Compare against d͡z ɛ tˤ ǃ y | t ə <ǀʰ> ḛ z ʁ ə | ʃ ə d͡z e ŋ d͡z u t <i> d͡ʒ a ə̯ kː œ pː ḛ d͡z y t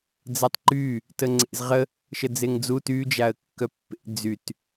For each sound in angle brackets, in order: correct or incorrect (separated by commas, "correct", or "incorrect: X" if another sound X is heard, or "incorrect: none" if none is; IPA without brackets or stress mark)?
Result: incorrect: ŋ͡ǀ, incorrect: y